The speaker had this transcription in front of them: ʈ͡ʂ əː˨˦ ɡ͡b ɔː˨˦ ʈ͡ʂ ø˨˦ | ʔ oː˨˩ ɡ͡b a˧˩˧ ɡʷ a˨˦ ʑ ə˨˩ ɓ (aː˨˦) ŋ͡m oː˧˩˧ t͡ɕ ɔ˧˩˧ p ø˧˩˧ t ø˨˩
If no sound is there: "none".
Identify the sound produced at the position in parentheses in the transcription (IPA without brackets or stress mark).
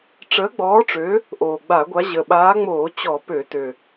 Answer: aː˨˦